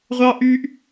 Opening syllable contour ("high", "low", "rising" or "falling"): high